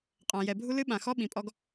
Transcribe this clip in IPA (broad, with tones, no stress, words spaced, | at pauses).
qʼã˨jɛ˨bʱu˦lɨ˦ ɓã˨xɔ˦ɓĩ˨pʼɔ˦ɡ